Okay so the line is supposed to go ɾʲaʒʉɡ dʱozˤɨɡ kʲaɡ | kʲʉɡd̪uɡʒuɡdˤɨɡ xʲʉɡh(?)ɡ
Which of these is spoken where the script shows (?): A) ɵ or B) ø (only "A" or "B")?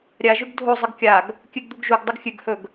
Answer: A